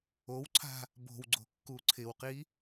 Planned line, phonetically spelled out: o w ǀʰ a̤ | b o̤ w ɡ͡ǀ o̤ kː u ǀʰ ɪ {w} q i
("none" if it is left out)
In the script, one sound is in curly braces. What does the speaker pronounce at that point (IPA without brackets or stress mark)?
w